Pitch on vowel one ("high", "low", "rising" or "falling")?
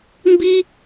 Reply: high